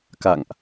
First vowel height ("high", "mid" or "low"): low